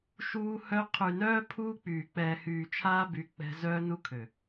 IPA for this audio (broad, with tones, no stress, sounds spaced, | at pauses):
ʃ uː˦ h œ˦ qʰ y˨ n œː˦ pʰ uː˦ k͡p yː˨ k͡p ɛː˨ h yː˨ t͡ʃʰ aː˦ b y˨˦ k͡p ɛ̤˦ z œː˦ n u˦ kʰ ø˨